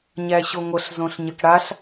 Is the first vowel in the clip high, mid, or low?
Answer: low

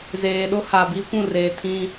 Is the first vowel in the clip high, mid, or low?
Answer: mid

